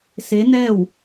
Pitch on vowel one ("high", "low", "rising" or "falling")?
rising